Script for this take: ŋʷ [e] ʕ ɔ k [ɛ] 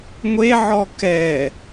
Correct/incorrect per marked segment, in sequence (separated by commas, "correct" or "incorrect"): correct, correct